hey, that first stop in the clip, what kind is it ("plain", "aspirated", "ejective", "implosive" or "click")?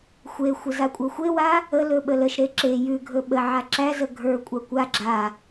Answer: ejective